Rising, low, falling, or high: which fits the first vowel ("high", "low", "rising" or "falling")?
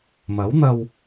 rising